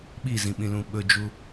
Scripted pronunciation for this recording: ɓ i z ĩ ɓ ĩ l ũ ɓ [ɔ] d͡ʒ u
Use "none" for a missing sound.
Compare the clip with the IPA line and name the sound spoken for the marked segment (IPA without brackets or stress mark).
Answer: ɵ